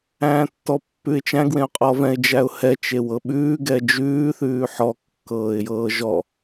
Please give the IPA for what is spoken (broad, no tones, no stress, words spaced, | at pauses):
æ̃ːtːɔpːʉɪ̯t͡ʃæ̃ɡ wẽʊ̯qʼɔvɛ̃ɪ̯ d͡ʒæʊ̯hɛ t͡ʃewɤɓʉː ɡɛd͡ʒʉː θʉːħɔ kːɤːɪ̯jɤːʒɔ